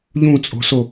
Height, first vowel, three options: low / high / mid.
high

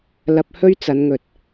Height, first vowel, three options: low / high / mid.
low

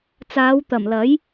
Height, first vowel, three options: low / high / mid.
low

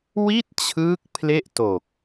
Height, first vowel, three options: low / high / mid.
high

